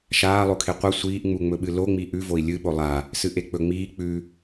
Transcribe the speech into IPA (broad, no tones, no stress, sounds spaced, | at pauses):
ʃ aː lˠ o kʰ e qʷ ɐ sʷ iː ʔ ŋ͡m u ŋ͡m ɵ ɓ ɨ l o ŋ͡m i ʔ ʉ v o i̯ lʲ ɨ ɓ o lˠ a | s ɨ ʔ e k͡p ɵ ŋ͡m iː k͡p ʉ